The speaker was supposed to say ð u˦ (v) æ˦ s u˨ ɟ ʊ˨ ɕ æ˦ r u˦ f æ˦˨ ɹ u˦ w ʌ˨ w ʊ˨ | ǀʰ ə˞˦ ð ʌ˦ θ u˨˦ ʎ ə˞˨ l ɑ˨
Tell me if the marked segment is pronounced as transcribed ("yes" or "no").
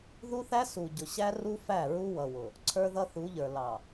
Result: no